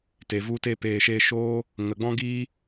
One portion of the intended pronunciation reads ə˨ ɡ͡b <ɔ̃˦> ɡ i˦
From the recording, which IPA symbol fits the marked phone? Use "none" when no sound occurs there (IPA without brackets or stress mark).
ɔ̃˦